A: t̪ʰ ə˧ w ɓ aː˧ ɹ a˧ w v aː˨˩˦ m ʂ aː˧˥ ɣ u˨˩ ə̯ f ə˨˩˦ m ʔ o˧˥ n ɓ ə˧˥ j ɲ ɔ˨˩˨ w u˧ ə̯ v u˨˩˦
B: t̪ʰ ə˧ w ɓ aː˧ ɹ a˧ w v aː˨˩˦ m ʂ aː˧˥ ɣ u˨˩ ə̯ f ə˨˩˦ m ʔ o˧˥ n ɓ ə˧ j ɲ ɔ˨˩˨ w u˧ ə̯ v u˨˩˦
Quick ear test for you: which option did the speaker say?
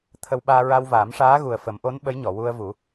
A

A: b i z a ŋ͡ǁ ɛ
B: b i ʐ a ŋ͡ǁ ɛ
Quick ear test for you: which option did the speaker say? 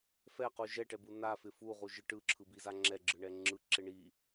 A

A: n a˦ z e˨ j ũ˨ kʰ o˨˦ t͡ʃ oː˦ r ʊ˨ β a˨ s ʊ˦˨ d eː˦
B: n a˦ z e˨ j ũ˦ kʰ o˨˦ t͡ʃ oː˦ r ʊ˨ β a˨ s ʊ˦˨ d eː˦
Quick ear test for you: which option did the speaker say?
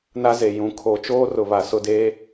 A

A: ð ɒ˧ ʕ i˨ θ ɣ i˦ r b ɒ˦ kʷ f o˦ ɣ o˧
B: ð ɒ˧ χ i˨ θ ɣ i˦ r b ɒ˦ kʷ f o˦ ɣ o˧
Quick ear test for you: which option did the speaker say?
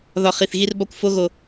B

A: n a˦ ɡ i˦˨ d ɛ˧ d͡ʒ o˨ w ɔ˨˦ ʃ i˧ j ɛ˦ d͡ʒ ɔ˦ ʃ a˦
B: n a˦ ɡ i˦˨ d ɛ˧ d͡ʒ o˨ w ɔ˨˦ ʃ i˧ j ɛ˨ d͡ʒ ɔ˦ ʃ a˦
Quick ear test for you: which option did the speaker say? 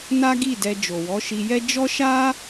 A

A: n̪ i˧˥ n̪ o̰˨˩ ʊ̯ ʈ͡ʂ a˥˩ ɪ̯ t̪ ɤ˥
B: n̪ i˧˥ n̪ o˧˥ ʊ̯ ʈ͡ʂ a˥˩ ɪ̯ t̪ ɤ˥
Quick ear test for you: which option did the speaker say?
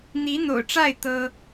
A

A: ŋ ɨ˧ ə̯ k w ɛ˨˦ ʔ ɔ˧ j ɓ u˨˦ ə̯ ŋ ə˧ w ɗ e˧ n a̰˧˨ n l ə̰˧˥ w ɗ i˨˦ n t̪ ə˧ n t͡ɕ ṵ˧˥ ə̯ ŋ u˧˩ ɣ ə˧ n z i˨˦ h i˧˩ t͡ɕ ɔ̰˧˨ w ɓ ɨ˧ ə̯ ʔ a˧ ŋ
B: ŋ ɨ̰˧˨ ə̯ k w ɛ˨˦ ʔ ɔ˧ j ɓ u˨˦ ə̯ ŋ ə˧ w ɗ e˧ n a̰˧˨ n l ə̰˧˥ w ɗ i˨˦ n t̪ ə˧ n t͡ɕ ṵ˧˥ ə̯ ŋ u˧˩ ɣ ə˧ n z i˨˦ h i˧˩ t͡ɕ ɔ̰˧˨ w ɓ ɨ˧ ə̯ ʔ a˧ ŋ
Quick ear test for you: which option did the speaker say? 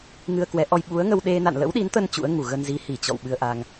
A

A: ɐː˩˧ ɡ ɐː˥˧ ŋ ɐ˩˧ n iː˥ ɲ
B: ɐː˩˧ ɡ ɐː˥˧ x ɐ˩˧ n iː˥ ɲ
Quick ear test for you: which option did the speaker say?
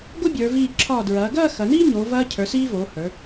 B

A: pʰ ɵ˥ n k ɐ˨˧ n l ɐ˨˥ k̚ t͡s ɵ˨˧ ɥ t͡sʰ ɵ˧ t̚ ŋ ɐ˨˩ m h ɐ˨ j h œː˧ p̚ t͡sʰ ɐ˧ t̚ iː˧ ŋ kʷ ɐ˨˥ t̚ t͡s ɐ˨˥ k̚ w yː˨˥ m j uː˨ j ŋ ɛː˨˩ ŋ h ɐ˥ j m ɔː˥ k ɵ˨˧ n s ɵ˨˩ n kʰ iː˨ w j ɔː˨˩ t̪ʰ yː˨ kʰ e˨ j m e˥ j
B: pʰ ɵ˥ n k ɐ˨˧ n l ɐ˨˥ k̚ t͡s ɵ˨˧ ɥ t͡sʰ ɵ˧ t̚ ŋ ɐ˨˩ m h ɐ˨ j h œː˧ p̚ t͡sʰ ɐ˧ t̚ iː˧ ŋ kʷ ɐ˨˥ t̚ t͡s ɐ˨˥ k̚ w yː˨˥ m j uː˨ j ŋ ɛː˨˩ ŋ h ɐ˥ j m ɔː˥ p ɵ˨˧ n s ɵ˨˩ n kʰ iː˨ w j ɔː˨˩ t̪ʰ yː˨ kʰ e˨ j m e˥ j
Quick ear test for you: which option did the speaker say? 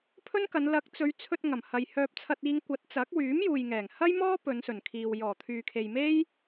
B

